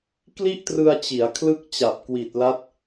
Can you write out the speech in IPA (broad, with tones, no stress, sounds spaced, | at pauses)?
k l i˥˩ ʔ t r ɯ˧ a̯ t͡ɕ i˩˦ a̯ kʰ l ɯ˥˩ k̚ t͡ɕ a˨˩ p̚ k w i˨˩ t̚ l a˦˥ t̚